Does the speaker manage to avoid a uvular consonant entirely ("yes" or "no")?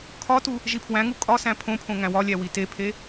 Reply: yes